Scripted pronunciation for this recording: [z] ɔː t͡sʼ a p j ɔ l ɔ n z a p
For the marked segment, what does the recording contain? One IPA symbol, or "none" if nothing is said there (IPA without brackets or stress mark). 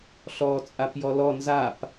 ɬ